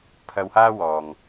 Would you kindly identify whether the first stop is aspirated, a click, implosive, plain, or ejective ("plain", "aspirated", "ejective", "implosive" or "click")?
aspirated